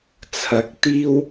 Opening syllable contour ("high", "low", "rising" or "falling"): rising